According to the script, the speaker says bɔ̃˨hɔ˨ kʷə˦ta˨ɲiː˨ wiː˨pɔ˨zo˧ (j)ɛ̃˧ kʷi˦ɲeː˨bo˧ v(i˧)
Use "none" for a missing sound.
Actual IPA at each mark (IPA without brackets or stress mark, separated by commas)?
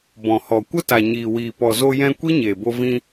j, ĩ˧